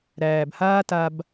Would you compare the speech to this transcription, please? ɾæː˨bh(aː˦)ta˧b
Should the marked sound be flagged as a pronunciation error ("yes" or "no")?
no